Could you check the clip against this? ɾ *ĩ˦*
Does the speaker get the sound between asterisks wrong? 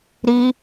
yes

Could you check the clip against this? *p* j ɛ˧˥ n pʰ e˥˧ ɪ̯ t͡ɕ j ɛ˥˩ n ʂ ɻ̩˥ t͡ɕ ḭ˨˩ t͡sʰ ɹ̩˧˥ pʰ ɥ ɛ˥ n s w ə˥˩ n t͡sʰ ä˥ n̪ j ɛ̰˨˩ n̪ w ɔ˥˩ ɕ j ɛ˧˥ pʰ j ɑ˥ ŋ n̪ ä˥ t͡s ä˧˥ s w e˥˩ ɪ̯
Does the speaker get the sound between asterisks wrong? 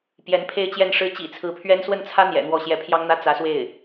no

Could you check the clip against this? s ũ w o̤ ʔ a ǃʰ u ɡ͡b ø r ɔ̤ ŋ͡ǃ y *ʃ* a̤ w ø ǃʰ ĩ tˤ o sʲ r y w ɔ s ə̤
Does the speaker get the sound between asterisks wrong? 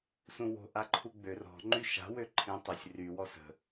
no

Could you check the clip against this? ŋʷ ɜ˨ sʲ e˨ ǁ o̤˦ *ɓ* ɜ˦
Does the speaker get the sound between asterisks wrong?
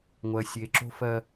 yes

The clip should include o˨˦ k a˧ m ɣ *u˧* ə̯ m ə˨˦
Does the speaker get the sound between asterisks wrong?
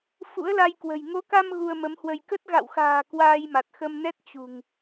no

